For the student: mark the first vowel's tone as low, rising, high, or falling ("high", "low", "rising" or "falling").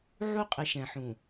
high